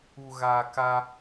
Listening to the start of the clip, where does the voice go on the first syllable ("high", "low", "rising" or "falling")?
low